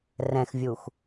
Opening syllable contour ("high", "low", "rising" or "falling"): low